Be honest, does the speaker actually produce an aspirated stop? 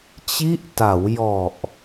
no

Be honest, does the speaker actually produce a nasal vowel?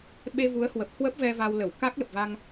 no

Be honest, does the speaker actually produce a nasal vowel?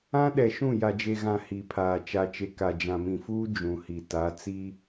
yes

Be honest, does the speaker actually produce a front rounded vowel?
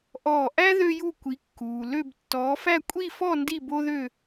yes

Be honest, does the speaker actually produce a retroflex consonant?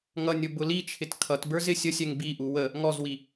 no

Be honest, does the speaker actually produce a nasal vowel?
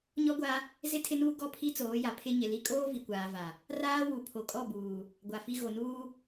no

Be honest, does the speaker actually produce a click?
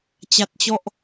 no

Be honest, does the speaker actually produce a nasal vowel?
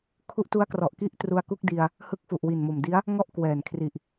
no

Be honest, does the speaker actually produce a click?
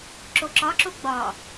yes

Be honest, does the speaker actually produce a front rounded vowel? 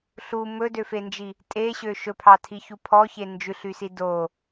yes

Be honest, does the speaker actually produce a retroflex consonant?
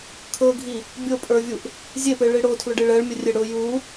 yes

